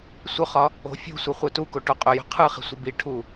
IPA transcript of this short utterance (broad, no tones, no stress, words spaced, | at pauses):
sʷœχɒ | o̤fʲo̤sʷɨ χʷœtuko ʈoqʼœjo̤ qʰɯχi̤ sʷɨbiʈʰu